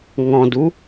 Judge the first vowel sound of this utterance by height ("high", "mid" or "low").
mid